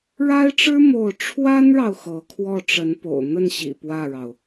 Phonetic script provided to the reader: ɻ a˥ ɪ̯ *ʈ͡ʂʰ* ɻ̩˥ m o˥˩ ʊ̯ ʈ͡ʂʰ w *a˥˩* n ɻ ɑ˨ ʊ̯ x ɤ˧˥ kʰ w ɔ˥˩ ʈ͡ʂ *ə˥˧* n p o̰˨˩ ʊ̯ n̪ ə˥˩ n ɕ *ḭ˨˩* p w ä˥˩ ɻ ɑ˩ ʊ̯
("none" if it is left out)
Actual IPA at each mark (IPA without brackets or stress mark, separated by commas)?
ʈ͡ʂ, a˥, ə˧˥, ḭ˨˩